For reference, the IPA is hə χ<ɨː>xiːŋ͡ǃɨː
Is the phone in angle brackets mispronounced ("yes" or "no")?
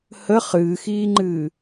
no